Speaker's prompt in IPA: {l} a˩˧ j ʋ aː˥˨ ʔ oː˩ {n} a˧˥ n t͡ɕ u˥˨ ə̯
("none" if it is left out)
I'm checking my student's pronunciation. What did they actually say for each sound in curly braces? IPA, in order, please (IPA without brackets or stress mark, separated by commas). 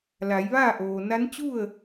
l, n